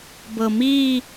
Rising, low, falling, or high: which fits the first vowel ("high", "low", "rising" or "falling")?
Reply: low